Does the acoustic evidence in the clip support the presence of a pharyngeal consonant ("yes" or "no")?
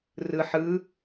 yes